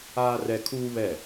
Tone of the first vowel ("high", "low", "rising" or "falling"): high